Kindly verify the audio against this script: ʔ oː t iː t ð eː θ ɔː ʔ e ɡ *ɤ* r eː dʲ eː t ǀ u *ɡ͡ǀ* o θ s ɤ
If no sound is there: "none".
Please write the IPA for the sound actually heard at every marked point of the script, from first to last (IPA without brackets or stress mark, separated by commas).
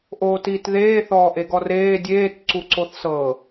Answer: ɔ, ǀ